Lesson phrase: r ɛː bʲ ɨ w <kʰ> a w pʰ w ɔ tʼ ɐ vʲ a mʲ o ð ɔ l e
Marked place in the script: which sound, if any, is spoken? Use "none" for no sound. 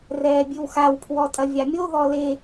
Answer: x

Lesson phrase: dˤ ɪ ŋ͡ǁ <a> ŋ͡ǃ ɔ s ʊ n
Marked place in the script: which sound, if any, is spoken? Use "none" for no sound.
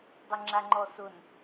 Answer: a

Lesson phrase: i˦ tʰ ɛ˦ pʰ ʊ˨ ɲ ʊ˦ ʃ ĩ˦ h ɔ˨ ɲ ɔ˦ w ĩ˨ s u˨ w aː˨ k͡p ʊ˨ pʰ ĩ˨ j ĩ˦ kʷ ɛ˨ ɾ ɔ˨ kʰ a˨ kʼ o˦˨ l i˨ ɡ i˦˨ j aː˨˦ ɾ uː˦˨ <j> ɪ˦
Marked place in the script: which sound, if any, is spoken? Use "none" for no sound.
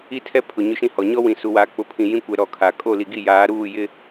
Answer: j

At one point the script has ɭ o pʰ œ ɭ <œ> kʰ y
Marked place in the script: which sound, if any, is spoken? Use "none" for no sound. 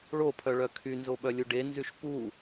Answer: œ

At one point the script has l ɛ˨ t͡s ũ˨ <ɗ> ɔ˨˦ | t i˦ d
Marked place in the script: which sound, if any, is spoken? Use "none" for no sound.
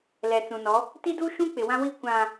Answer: n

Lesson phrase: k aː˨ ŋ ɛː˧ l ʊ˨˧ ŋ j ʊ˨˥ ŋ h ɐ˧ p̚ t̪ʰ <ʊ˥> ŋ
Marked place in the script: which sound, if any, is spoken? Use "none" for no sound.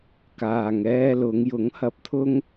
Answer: ʊ˥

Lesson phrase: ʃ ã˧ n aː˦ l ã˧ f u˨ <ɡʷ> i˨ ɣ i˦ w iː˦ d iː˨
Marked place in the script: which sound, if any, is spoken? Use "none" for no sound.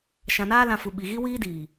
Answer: ɓ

